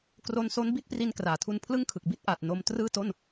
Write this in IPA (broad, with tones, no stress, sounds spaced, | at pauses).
k r o˦˥ n s o˦˥ n b i˥˩ t̚ p r i˧ n k r aː˨˩ tʰ u˧ n pʰ l ɯ˥˩ ŋ kʰ ɯ˨˩ k̚ b i˥˩ t̚ ʔ aː˨˩ t̚ n o˧ m t r ɯː˥˩ t o˥˩ n